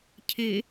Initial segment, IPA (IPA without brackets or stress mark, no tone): cʰ